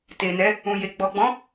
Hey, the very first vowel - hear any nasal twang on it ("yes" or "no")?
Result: no